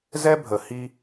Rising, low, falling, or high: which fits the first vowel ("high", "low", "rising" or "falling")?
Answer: high